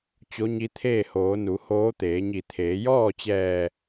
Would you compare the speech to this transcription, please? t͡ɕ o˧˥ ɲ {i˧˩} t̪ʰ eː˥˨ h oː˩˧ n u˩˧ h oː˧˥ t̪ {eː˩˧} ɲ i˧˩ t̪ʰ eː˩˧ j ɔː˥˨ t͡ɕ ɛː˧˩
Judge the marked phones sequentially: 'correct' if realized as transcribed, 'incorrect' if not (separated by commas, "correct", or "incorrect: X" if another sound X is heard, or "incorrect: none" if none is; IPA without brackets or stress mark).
incorrect: i˧˥, correct